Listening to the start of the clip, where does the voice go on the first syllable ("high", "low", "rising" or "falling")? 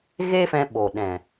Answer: high